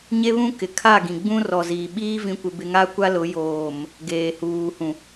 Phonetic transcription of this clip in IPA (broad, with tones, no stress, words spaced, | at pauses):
ɲe˦βũ˦ kɪ˨kʰa˦˨ɡĩ˨ ɡ͡bũ˦rɔ˨ziː˨ɓiː˦ vĩ˦kʷɪ˦bɪ˦ ŋa˦kʷa˦lʊ˨˦ joː˨m | ɡeː˨huː˨hũ˨